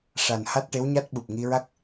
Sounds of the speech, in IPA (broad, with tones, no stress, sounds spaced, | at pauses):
ʂ a˨˩ n h a˦˥ t̚ ʈ e˧˥ w ɲ a˦˥ t̚ ɓ u˨˩ p̚ ŋ i˧ ɹ a˦˥ k̚